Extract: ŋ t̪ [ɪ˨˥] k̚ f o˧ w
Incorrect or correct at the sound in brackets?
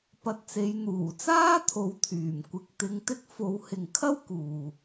incorrect: ɪ˥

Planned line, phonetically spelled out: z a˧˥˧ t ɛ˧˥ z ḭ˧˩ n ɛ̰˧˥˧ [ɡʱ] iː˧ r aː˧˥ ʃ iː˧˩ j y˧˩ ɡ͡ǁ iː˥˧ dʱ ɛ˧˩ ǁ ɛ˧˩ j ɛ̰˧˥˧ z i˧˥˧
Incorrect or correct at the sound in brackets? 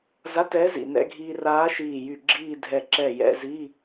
correct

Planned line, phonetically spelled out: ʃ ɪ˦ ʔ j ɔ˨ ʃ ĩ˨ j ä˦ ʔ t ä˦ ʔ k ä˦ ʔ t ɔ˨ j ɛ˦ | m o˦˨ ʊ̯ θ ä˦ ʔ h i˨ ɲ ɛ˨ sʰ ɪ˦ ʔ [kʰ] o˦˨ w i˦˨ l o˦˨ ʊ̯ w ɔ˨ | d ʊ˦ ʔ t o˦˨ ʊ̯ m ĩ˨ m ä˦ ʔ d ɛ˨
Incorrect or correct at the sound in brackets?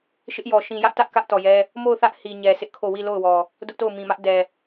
correct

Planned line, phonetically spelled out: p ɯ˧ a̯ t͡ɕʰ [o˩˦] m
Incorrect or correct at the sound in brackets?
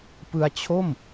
incorrect: o˥˩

